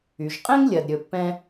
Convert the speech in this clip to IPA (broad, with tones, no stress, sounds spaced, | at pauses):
y˩ ʒ qʼ ɛ̃˥ ŋ lʲ ɜ˩ d ɾʲ ɵ˨ pː ɛ̃˦